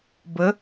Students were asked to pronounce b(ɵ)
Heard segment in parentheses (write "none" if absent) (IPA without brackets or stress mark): ə